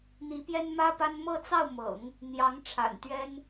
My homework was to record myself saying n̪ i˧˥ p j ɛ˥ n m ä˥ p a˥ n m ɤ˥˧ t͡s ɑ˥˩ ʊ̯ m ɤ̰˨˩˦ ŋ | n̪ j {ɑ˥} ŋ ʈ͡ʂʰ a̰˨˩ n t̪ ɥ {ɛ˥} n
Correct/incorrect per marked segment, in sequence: incorrect, correct

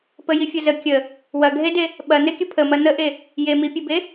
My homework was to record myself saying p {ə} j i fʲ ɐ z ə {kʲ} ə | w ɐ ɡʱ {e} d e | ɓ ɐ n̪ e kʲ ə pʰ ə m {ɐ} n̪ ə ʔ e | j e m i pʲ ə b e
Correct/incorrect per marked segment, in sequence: correct, correct, correct, correct

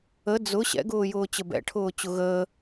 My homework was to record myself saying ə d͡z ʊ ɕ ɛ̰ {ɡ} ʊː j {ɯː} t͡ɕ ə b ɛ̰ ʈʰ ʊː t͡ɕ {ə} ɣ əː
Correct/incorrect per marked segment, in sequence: correct, incorrect, incorrect

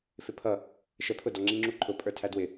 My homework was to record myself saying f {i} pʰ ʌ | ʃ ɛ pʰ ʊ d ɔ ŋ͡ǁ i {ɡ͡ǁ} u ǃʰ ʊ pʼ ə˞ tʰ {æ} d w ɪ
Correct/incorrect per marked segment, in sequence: incorrect, incorrect, correct

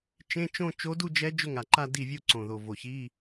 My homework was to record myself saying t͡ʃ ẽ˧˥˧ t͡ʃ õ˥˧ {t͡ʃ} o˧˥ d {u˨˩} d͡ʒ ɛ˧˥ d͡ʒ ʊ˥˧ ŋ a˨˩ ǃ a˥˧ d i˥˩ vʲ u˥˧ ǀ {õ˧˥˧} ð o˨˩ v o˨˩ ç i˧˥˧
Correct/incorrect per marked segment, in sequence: correct, incorrect, incorrect

